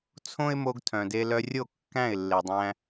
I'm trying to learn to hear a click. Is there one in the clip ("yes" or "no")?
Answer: no